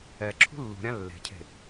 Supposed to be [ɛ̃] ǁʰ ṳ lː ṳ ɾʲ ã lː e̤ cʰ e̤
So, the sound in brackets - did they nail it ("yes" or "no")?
no